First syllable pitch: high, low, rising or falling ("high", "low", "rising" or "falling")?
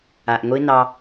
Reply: low